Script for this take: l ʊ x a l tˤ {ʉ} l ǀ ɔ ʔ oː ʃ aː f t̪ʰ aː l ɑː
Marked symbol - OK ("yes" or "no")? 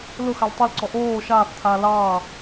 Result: no